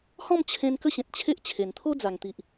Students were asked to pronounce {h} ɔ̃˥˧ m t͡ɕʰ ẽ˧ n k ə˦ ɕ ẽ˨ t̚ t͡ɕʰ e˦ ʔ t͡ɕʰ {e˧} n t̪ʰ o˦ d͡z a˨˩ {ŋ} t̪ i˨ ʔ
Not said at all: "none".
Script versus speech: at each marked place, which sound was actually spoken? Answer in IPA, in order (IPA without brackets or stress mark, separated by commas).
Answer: h, e˨˩, ŋ